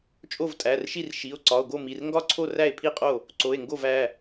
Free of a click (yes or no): no